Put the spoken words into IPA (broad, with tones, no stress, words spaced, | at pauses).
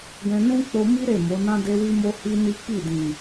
ɡɛ̃˧nũ˦ k͡po˧mi˦ ɾe˦˨mo˨˦ nã˦de˦wi˦mo˦ hi˦ni˦ ki˦˨dĩ˨